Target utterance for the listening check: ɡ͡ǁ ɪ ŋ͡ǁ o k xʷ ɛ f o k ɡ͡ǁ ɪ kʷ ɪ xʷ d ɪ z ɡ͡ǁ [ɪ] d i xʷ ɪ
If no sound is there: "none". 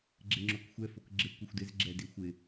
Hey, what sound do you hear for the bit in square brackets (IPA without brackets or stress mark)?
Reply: ɛ